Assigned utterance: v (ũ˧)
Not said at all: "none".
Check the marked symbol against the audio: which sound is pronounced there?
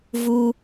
u˧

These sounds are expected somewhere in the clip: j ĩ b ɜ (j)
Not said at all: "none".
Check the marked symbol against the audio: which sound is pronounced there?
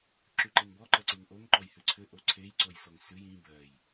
j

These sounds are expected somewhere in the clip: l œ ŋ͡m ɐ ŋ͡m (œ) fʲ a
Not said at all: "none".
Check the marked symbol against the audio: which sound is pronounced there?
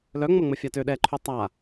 ə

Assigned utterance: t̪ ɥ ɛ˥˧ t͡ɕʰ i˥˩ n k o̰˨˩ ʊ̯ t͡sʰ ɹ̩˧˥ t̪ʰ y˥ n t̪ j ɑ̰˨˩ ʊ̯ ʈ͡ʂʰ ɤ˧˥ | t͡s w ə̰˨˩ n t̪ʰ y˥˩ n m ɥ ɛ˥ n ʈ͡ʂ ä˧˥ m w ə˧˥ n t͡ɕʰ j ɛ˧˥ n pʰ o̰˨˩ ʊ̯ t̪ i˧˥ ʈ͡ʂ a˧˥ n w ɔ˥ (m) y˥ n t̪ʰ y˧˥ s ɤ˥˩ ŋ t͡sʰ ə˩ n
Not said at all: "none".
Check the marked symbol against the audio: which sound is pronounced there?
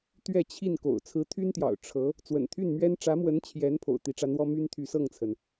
m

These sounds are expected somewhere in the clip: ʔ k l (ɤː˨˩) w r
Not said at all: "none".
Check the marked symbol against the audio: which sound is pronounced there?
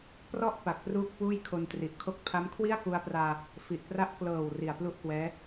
ɤː˨˩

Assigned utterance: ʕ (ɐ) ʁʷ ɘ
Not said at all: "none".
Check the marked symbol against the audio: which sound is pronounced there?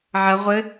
ɐ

